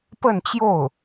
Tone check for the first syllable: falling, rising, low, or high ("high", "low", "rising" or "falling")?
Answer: falling